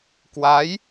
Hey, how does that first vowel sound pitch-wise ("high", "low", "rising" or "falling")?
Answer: rising